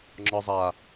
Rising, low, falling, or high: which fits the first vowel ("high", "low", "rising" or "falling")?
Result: low